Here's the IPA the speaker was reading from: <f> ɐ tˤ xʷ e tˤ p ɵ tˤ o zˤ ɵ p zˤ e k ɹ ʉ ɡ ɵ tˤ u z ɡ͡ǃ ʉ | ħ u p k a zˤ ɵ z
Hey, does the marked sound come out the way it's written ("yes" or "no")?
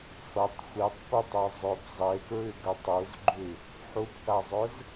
yes